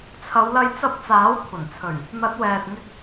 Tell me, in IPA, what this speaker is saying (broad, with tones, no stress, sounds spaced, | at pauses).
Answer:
t͡sʰ ɐ˨˧ w l ɐ˧ j t͡s ɐ˧ p̚ t͡s aː˨˥ w kʷʰ ɐ˨˩ n t͡sʰ ɵ˨˩ ɥ | n̪ ɐ˨˥ t̚ w ɛː˨ t̚ ŋ ɪ˧ k̚